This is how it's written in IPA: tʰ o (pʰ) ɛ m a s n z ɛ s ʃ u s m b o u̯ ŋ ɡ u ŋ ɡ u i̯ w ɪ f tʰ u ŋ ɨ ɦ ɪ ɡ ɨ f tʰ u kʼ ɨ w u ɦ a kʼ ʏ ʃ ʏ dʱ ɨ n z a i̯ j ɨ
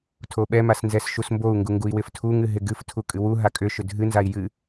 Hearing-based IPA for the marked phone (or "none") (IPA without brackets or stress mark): ɓ